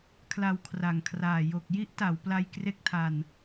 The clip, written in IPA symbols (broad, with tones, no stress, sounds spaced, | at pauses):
kʰ l a˧ w kʰ r a˨˩ ŋ kʰ r aː˨˩ j o˨˩ k̚ j i˦˥ ʔ t a˩˦ w p l a˧ j k r e˦˥ k̚ tʰ a˧ n